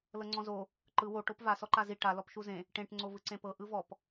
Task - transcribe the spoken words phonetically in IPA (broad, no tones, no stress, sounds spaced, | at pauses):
l ɤ ŋ͡ǀ ɔ̃ z o | ǃ ɯ w o ʈ o p v a s ɔ ǃ a z i ʈ a l ɔ p ʃ u z ẽ | ʈ ẽ ʈ ŋ͡ǀ o v ɯ ǀ ẽ p ɤ ʔ ɯ v ɔ p